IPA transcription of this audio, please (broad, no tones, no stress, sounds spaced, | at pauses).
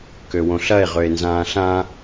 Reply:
k ø w õ ɬ ɐ e̯ ʁ ø e̯ n z ãː ɬ ã